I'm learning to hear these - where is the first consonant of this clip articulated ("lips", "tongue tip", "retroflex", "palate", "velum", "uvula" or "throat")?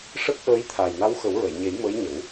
retroflex